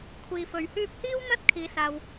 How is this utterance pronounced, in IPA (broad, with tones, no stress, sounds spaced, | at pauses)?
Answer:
kʷʰ iː˨ f ɵ˨ ɥ h yː˥ p̚ h iː˥ w n̪ ɐ˥ t̚ kʰ iː˧ s aː˧ w